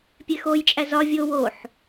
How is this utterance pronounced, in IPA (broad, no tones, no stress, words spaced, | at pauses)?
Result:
pʲexojt͡ʃʼæ zɒ vʲo woħ